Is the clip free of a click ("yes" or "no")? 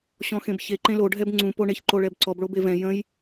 no